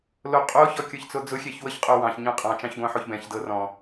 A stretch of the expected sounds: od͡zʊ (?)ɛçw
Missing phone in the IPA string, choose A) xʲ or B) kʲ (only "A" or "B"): A